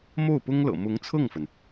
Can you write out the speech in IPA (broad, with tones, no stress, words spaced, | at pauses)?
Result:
mo˥˩ʊ̯pʊ˥ŋ lɤ̰˨˩mʊ˧˥ŋ t͡sʰɤ˥˩ŋfə˩n